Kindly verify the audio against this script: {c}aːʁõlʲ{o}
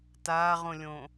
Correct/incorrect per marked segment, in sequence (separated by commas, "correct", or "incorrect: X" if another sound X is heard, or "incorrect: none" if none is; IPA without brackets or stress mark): incorrect: t, incorrect: õ